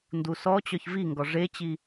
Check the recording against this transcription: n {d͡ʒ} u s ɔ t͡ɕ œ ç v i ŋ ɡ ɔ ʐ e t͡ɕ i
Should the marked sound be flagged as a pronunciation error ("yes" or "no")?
yes